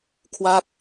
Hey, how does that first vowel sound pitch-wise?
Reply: falling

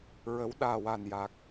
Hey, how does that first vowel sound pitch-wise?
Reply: rising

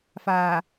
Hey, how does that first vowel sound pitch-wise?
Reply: low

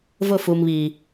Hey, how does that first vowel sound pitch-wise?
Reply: falling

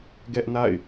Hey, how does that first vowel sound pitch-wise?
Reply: high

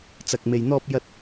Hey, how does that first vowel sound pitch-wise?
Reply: low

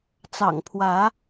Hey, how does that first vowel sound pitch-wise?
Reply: low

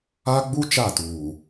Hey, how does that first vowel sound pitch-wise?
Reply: high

